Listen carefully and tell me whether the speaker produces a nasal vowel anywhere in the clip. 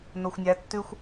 no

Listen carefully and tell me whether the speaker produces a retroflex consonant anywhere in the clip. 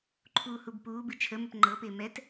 no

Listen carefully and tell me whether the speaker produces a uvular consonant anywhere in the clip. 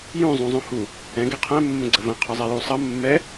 yes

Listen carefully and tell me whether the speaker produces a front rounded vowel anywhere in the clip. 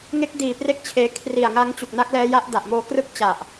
no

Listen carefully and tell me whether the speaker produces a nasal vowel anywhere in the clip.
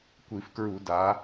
no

